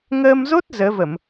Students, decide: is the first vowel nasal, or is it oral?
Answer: oral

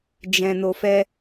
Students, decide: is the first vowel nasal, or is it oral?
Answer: nasal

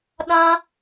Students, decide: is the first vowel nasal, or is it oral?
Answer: nasal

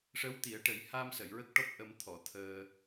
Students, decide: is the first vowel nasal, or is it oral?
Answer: oral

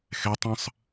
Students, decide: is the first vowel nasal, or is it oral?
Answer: oral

